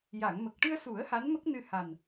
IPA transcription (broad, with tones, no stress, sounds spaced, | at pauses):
j a˨˩˨ ŋ m ə˨˩ k̚ ʈ ɨ˧ ə̯ s u˨˩˦ ə̯ h a˧˥ n m ə˦˥ k̚ n ɨ˧ h a˨˩ n